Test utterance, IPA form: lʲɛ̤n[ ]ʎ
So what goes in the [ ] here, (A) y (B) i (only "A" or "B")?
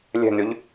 A